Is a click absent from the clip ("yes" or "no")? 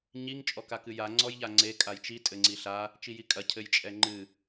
no